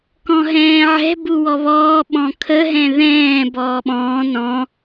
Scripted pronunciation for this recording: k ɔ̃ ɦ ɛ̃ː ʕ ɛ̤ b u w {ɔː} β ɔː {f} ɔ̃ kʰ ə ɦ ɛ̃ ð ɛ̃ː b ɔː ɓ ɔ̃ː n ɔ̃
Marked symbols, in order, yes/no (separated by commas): no, no